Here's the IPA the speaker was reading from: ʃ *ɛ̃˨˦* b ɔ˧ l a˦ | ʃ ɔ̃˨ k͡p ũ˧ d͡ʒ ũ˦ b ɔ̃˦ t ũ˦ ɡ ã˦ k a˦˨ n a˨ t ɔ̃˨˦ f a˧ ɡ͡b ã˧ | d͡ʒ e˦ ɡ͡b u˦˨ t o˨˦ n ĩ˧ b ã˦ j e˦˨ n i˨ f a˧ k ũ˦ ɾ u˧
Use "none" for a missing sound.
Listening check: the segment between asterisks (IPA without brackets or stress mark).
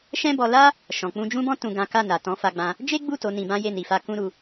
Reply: ɛ̃˦